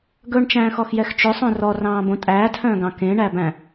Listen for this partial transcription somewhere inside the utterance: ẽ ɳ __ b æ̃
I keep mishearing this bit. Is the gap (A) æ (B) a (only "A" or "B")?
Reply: A